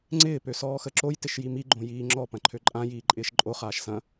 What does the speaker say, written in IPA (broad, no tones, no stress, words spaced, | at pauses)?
ŋ͡ǀɪː pøsɔːxəǁoj tɪʃjimi ɡ͡ǃõjiːŋ͡ǁɔ pɐ̃ǃʰøǃʼã jiːǃʼɪːʃǃʼo χaːʃsɐ̃